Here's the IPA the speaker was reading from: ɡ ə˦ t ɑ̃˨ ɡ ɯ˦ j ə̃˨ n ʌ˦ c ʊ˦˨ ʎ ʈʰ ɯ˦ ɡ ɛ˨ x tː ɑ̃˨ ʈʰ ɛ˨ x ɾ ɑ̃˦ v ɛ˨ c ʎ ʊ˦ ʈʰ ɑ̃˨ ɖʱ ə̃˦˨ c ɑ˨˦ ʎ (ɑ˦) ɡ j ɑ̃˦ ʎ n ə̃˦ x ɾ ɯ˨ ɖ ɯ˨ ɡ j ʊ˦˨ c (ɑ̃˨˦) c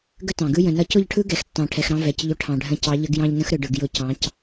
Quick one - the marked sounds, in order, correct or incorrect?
incorrect, correct

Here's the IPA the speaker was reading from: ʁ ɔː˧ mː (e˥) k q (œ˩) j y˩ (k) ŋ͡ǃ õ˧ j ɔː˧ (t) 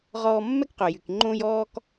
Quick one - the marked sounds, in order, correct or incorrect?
incorrect, correct, correct, incorrect

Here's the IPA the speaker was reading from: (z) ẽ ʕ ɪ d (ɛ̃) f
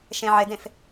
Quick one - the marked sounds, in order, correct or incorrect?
incorrect, incorrect

